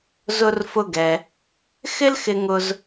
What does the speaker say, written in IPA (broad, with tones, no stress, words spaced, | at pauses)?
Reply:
zʊ˧rfʊ˧ɡɛ˩ | xɪ˥lxɪ˧ŋʊ˧z